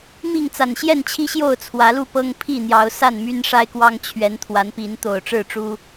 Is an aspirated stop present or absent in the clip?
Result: present